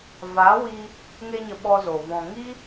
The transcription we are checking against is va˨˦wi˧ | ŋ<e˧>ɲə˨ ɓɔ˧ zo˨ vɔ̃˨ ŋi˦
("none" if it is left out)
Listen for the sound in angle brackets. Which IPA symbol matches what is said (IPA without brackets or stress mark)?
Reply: e˧